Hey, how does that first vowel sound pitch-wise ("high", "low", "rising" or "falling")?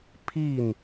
falling